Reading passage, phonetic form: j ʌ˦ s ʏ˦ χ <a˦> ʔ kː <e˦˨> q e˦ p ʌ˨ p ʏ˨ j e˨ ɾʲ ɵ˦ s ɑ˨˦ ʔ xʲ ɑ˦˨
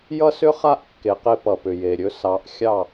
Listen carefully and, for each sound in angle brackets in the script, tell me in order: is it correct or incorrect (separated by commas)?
correct, incorrect